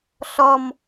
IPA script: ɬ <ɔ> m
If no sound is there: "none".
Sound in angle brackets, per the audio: ɔ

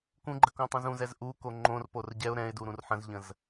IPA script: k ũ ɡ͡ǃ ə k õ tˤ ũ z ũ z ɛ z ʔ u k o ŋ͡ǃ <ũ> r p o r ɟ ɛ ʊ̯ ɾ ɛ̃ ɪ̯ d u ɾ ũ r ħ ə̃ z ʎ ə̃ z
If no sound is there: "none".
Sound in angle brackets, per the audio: õ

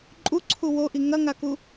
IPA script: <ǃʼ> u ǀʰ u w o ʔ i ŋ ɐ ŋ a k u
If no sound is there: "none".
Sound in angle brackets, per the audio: ǃʼ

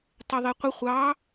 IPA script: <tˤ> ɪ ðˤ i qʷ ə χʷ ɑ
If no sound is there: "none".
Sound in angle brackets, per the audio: tˤ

